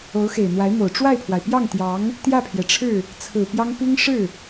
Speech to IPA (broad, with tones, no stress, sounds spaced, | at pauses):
o˧˥ ʊ̯ x e˨˩ ɪ̯ n̪ w a˧˥ ɪ̯ m o˨˩ ʊ̯ ʈ͡ʂ w a˥˩ ɪ̯ pʰ w a˩ ɪ̯ p j ɑ˥˩ ŋ t̪ j ɑ˧˥ ŋ | t̪ j ä˥˩ pʰ j ɛ˩ ʈ͡ʂʰ ɻ̩˥˩ | t͡sʰ ɹ̩˨˩ p j ɑ˥ ŋ p i˥ ŋ ʂ ɻ̩˥˩